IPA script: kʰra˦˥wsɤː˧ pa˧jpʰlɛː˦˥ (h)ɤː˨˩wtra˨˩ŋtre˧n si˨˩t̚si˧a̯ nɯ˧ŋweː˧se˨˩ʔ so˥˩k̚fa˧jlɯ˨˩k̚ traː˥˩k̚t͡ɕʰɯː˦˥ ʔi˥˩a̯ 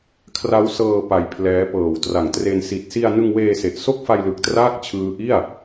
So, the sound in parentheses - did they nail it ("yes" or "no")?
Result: no